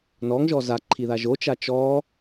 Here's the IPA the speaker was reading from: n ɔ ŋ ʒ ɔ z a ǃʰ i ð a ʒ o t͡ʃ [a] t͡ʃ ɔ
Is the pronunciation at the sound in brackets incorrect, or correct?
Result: correct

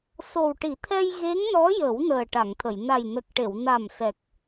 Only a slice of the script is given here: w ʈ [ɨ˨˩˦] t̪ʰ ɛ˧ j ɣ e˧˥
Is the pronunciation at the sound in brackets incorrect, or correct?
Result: incorrect: i˨˩˦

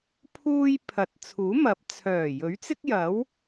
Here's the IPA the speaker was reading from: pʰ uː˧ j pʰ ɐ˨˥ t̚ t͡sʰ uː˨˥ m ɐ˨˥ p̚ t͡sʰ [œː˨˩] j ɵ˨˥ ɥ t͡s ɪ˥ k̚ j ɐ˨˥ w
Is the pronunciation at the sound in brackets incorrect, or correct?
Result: correct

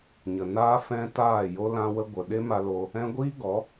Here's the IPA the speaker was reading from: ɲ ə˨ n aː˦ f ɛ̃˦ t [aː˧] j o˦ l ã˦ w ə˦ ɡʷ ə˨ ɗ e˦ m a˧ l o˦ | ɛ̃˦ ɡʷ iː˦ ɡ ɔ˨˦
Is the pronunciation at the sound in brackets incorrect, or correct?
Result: incorrect: aː˦˨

